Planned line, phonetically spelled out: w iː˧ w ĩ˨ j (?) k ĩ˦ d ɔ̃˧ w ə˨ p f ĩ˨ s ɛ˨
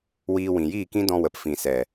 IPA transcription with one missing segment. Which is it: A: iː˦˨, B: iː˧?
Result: A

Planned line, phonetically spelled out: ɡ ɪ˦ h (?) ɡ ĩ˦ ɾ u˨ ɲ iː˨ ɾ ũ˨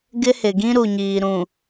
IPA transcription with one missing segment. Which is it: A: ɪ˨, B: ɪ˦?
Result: A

